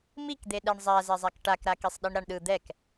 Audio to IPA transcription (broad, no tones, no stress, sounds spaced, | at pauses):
m i k d̪ e ɗ ɛ ɳ zˤ a z ɛ zˤ a k ʈ a k ɾ a k i sˤ ɗ i ɳ ɾ a ɳ ɗ ɯ d̪ ɛ k